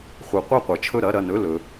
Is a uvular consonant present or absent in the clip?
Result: present